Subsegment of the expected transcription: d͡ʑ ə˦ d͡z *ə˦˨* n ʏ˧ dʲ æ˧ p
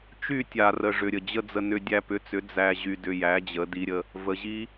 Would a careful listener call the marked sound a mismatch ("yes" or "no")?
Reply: yes